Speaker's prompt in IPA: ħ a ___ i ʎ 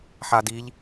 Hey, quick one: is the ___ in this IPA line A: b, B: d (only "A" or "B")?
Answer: B